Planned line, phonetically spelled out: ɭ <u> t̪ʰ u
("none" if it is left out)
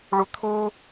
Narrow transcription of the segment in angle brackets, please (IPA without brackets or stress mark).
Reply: u